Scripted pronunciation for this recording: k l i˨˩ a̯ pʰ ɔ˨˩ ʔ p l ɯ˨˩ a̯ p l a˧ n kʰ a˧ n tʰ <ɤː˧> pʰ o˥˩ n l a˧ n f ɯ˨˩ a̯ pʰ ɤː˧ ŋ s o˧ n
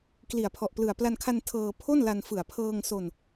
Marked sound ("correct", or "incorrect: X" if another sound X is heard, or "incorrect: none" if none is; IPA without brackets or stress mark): correct